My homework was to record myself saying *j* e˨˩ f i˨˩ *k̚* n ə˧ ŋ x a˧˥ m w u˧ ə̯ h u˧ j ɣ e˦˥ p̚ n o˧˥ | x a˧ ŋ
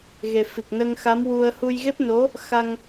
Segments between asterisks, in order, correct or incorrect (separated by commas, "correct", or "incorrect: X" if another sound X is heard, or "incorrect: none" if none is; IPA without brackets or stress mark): incorrect: ɣ, correct